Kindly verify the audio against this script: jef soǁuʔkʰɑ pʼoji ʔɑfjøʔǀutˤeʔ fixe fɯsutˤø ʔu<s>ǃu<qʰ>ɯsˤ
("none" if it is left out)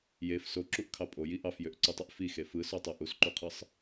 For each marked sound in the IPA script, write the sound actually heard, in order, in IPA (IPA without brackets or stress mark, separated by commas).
s, qʰ